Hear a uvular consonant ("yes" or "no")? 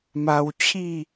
no